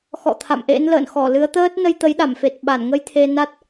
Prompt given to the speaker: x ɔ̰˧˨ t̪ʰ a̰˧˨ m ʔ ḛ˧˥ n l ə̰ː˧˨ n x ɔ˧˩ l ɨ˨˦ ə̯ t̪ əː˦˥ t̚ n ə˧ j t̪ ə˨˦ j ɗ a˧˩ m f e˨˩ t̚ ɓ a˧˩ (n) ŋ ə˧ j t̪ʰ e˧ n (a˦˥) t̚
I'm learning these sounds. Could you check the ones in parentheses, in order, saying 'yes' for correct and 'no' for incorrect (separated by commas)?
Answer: yes, yes